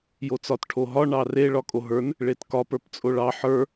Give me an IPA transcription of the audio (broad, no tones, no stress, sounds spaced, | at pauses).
j o t͡s ɒ t ʈʰ o ɦ ɒ ɳ ɑ r e ɭ ɒ kʼ o ɦ ə˞ n | ɭ e t k ɒ p ə˞ p t͡sʼ o ɭ ɑ ħ ə˞